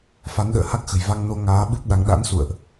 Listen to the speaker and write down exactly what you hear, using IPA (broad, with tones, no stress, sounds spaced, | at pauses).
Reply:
f a˨˦ n ɗ ə̰ː˧˨ h a˦˥ k̚ x ə̤˨˩ j v a˧ ŋ n o˧ ŋ aː˨˦ ɓ ɨ˦˥ p̚ ɗ a˨˦ ŋ ɗ a̰˧˥ n s ṵ˧˨ ə̯ ʔ